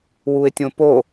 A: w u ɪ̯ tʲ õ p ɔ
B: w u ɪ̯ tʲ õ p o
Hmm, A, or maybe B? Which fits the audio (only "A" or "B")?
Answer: B